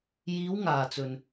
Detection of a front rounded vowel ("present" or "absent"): absent